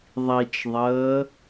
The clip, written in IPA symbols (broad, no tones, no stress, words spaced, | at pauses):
ðˤit͡ʃðˤəː